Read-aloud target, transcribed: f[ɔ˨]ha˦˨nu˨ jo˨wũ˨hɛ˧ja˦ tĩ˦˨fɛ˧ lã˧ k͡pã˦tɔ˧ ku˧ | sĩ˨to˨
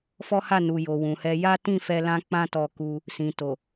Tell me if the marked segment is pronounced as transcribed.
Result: no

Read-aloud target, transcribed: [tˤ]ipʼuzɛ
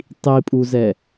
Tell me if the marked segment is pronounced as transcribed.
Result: yes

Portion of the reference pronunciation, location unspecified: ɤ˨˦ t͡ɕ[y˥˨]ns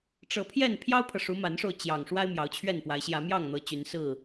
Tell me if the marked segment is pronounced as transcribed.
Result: no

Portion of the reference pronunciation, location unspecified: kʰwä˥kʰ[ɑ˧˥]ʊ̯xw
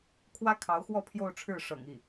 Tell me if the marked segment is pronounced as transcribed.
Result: yes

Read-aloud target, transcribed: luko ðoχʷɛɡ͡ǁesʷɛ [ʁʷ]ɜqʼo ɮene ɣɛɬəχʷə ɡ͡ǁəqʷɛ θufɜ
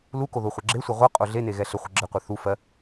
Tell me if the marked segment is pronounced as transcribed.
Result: yes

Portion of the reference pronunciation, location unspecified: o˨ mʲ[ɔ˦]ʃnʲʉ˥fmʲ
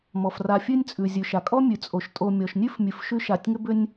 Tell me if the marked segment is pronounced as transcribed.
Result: no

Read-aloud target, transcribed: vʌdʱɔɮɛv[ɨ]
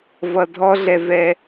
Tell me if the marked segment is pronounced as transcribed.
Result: no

